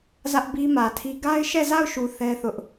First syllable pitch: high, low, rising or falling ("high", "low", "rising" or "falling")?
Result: high